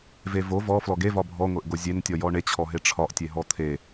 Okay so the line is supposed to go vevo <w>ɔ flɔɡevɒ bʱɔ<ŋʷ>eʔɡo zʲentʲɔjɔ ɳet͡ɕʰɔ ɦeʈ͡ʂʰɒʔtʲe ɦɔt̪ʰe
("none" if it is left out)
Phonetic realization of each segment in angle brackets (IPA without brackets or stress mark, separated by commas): v, ŋʷ